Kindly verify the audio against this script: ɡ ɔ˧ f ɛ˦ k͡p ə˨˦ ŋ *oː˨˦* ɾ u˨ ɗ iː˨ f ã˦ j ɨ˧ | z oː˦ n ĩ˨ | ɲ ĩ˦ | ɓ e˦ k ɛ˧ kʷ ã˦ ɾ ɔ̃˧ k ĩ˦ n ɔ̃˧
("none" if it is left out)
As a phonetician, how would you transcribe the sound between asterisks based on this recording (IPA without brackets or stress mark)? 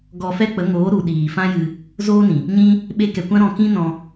oː˨˦